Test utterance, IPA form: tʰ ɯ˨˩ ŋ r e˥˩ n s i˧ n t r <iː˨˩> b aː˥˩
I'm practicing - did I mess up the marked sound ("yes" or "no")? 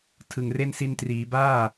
yes